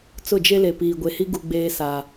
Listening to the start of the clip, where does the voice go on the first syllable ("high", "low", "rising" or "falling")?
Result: falling